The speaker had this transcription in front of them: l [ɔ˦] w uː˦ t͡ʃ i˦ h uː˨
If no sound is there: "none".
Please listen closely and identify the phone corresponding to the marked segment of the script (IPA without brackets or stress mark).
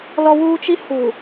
ɔ˦